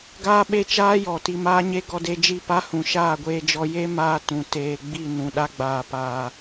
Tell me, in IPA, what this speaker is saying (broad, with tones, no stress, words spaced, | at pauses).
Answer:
ɡaː˦ɓe˦t͡ʃaː˦jɔ˨ ti˧maː˦ɲe˦ ɡɔ˧de˧ d͡ʒi˦˨pa˦hũ˨ ʃaː˦˨ɡʷeː˧d͡ʒɔ˧ je˦ maː˦tũ˨ teː˨ɡ͡bi˦˨ nũ˨ɗa˧ ɡ͡baː˨paː˨